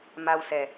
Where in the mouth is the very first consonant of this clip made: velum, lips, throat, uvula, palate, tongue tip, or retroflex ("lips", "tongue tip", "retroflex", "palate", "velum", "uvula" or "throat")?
lips